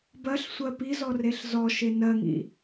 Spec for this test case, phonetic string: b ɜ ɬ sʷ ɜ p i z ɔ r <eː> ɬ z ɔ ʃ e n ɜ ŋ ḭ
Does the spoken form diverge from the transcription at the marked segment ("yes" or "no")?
yes